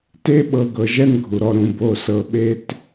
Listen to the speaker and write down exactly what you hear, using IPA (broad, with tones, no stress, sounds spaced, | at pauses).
t e˦ ɓ ɤ˨ ɡ ɤ˨ ʒ ɛ˥ n ɡʱ u˩ ɾ ɔ˨ ɾ ũ˩ b o˨ s ɤ˨ ɓ e˦ t